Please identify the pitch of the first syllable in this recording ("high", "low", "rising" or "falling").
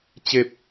high